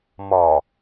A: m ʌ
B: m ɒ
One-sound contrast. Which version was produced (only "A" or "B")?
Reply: B